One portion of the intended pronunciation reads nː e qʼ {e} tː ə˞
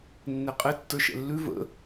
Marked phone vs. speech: correct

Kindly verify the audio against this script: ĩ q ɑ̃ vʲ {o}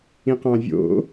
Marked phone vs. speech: incorrect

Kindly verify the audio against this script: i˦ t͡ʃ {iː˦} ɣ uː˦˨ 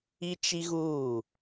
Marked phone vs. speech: incorrect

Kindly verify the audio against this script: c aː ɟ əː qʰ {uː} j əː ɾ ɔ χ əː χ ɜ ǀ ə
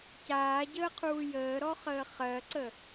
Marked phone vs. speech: correct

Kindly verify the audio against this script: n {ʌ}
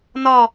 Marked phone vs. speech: incorrect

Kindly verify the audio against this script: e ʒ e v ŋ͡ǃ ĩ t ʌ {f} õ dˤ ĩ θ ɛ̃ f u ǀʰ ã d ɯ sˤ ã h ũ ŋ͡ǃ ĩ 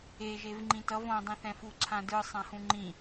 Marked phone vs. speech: incorrect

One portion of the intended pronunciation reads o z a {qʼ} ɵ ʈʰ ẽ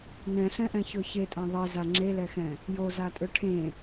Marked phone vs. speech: incorrect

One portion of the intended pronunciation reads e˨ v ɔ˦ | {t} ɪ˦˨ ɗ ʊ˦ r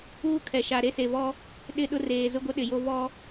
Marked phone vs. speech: incorrect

